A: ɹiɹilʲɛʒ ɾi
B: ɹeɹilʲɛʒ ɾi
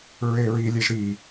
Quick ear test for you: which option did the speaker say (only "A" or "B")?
B